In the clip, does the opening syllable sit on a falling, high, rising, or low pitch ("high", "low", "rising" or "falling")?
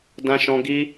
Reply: high